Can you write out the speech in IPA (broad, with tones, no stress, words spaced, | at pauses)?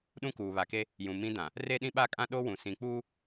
ɗũ˦kuː˨βa˨ke˦ | jũ˨mĩ˦dã˨ | re˦ɗĩ˦ɓa˦kʼã˦ ɗo˦wũ˨ sĩ˨k͡puː˦